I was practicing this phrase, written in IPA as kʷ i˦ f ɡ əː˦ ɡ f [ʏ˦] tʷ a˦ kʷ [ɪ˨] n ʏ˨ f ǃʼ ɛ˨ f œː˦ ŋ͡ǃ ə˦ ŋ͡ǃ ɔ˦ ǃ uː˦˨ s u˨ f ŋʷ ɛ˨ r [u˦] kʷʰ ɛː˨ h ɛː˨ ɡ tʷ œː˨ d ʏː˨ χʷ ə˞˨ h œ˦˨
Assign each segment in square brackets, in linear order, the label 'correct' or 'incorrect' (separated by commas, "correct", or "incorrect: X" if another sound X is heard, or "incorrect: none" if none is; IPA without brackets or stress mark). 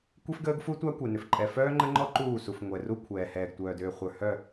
incorrect: u˦, incorrect: ɛ˨, correct